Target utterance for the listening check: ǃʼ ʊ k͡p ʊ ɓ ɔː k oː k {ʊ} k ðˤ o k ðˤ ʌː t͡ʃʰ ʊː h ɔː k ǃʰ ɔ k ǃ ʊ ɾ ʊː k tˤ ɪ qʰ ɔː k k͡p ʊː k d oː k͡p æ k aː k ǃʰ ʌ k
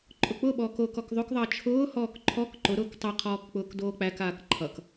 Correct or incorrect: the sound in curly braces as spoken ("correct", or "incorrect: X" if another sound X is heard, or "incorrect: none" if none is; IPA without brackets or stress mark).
incorrect: ɔ